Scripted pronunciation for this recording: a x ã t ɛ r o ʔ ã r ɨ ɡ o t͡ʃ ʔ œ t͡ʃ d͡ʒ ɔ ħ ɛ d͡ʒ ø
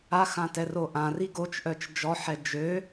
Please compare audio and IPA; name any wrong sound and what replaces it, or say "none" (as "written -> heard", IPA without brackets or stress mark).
ɨ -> i